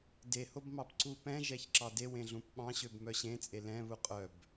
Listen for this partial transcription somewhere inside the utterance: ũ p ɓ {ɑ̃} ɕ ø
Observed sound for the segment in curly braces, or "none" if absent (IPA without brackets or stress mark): ɑ̃